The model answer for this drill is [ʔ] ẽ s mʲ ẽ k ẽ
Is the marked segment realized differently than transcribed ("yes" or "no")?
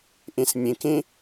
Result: no